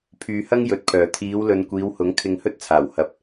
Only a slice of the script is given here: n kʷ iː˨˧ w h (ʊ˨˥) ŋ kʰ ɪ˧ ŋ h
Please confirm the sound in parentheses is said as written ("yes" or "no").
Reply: yes